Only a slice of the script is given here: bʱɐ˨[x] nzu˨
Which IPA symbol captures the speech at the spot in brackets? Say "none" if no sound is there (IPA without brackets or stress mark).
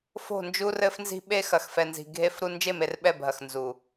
x